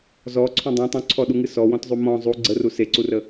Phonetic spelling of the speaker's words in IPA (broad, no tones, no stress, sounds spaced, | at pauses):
z ɔ ǀʰ ũ dˤ ẽ tˤ ũ ǀʰ ɔ ɗ u ŋ ɨ s ɔ w ɔ̃ t zˤ u m ɔ̃ zˤ u ɡ͡ǀ ə r u s e ǀ u r ə